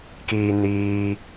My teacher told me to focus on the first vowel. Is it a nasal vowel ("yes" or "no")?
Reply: no